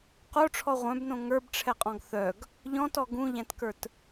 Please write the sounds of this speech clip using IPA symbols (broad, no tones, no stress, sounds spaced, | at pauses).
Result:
q o ʈ͡ʂʰ ɔ ʁʷ œ̃ b n õ ŋ ə˞ b ʈ͡ʂʰ ɛ qʼ ɔ̃ ɡ θ œ ɡ | ʎ ɔ̃ t ɔ ɡ ũ ʎ æ̃ t k ə˞ t